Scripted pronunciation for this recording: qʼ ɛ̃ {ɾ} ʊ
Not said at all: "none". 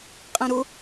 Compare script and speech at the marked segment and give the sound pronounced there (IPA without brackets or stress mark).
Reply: ɾ